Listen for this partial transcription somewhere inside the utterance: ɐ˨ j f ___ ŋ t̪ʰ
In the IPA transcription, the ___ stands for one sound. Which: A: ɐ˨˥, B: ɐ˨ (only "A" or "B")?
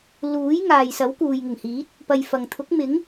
B